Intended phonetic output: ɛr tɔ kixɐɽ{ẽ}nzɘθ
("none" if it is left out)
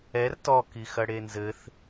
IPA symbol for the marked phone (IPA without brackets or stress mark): e